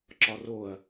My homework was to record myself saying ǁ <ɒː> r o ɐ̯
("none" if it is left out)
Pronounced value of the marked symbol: ɒ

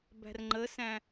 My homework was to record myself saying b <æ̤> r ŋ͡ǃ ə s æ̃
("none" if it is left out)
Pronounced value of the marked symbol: æ̤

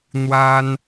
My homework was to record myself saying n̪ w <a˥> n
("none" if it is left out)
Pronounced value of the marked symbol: a˥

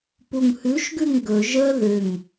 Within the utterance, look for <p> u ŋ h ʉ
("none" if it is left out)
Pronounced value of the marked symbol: p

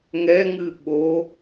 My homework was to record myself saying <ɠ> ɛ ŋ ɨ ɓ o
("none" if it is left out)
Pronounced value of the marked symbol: ŋ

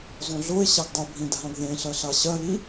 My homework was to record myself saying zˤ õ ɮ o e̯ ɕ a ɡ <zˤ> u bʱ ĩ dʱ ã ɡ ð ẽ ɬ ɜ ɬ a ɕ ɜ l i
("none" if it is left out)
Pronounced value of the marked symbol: dˤ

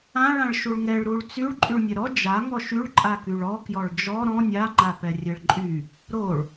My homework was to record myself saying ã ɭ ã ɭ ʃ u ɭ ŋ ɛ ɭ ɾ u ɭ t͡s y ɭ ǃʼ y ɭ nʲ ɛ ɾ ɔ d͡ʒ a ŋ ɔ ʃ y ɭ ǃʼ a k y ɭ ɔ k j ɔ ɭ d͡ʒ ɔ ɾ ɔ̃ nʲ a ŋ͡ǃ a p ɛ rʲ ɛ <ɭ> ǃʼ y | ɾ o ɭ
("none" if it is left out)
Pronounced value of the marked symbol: ɭ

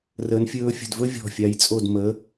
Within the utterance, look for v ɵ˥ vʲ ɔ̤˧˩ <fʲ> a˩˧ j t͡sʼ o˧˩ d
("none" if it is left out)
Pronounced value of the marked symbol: fʲ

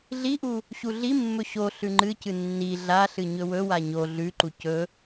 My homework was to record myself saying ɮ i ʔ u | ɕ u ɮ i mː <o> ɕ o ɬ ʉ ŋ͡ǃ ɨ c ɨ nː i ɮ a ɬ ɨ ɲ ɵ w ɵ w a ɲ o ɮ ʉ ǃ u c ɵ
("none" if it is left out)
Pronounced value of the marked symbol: ɵ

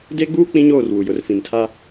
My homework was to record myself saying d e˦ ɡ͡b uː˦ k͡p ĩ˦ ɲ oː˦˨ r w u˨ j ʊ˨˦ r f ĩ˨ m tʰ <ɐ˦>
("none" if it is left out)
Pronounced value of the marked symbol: a˦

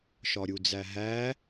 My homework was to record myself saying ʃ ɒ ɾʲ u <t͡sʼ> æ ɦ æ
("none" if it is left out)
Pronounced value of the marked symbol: d͡z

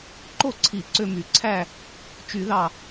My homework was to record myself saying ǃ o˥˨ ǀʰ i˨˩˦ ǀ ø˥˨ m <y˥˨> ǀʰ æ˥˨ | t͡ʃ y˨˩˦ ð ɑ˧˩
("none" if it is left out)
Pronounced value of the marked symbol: y˨˩˦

